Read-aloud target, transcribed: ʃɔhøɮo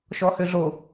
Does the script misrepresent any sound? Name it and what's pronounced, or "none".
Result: none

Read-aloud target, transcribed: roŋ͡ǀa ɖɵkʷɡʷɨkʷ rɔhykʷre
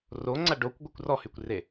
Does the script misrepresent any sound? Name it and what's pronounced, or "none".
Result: ɵ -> o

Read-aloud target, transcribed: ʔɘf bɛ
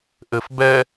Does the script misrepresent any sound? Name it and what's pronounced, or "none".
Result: none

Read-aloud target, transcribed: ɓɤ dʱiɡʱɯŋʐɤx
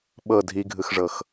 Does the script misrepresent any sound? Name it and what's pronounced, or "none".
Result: ŋ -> x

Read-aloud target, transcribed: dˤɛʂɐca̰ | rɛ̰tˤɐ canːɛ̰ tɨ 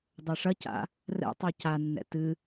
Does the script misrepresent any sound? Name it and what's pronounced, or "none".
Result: none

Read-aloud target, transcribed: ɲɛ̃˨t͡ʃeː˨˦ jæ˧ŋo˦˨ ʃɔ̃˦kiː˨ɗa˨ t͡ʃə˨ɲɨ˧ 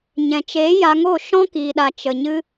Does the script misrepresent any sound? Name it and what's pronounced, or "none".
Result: æ˧ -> a˧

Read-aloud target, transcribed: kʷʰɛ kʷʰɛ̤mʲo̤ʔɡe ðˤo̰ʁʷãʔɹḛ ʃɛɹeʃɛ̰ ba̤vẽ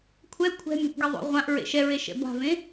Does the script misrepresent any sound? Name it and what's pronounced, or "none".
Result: none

